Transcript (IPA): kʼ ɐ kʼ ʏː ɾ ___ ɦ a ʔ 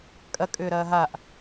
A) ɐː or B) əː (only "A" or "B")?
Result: A